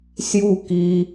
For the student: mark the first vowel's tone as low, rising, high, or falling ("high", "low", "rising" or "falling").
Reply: falling